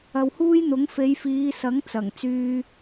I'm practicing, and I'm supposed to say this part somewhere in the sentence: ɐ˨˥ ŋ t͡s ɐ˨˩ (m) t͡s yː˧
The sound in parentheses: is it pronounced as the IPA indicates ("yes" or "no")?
no